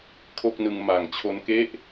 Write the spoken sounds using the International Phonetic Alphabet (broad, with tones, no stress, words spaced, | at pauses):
kʰo˥˩k̚nɯ˧ŋ ma˩˦ŋt͡ɕʰo˧nke˥˩ʔ